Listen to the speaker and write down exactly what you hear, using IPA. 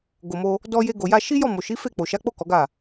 ɡ o˨ m o˧ | d ɔ˧ j e˧ ɡ o˨ j a˧ ʃ i˦ j ɔ˦˨ m o˨ ʃ i˨˦ f e˦˨ k͡p o˨ ʃ a˨˦ k͡p o˦˨ k ɔ˨˦ ɡ a˦˨

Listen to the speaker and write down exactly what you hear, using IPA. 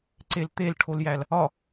ǀ e l t̪ e l ʈʰ o l j æ l | ɒ

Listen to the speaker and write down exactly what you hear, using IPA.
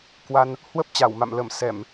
k w a˧ n | h w ə˦˥ p̚ t͡ɕ a˧˩ w m a̰˧˨ m l ə˧˩ m s ɛ˧˩˨ m

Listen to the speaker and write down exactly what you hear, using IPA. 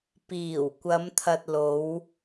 p iː˨˩ w kʷ ɐ˨˧ m t̪ʰ ɐ˨ t̚ l o˨˧ w

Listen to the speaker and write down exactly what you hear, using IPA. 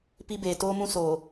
p i˦ b eː˨ t oː˦ m ũ˦ s oː˨

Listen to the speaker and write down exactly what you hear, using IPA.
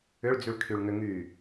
ʏ ɭ d͡z y ɭ kʰ y ɭ ŋ ʏ ŋ y

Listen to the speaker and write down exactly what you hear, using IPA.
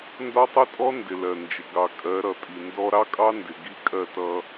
n d ɒ˦ tˤ i˦ tʼ ɔ˦ n d ɪ˨ l ɜ˨ n d͡ʒ ɪ˨ ɡ ɑ˨ kʼ ɜ˨˦ ɾ ʌ˨ tʼ i˨ n d ɔ˦ ɾ ɑ˦ kʼ ɑ˦ n d ɪ˨ ɡ i˦ kʼ ɜ˦˨ t ʌ˦

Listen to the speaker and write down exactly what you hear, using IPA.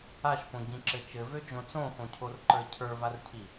a ʃ p õ ɟ ĩ ǁ ɘ t͡ʃ ɘ v ø d͡ʒ õ t͡s õ x õ cʰ o r ǃ ə˞ cʰ ə˞ v a r cʰ i

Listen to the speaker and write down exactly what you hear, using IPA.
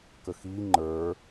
k ə x i ŋ͡ǃ ə˞

